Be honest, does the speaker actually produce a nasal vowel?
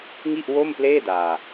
no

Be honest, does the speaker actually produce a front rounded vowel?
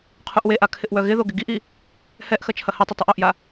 yes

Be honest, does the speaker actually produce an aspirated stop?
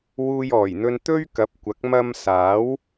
no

